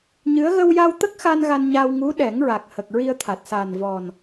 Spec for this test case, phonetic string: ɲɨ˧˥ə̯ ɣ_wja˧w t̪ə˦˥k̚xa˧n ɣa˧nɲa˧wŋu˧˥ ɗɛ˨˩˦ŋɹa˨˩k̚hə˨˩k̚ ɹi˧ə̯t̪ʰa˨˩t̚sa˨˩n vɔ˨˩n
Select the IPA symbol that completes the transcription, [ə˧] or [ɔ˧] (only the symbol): ə˧